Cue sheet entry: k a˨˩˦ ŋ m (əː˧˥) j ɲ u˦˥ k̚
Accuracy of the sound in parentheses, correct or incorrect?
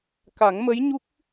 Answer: incorrect